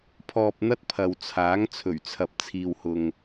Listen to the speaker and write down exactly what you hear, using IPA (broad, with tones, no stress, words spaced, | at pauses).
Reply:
pʰɔː˧p̚n̪ɐ˥t̚pʰɐ˨wt͡sʰaː˨˥ŋ t͡sʰɵ˨˩ɥt͡sʰɐ˨p̚t͡sʰiː˨whʊ˨ŋ